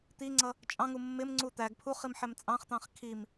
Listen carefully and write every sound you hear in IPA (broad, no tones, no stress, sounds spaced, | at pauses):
t̪ i ŋ͡ǀ ʌ | t͡ʃʼ ɑ̃ ŋ u mː ɪ m ŋ͡ǀ u t̪ æ ɡ pʰ u χ i m ħ ɛ m t͡sʼ ɑ̃ χ t̪ ɑ̃ χ kʰ i m